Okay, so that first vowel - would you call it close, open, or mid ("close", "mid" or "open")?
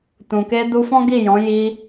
close